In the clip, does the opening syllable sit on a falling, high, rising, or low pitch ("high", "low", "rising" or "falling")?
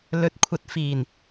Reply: rising